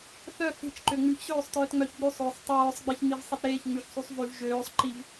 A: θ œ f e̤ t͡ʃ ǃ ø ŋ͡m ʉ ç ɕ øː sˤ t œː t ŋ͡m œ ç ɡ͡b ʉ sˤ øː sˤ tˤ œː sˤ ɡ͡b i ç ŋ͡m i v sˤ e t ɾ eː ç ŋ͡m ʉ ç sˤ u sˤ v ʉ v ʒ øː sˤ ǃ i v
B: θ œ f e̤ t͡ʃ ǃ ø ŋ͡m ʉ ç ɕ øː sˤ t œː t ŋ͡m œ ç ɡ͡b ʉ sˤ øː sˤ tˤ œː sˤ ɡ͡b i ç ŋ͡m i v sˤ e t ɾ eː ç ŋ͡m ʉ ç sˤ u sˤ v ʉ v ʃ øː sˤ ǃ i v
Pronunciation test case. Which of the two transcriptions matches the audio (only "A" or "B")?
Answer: A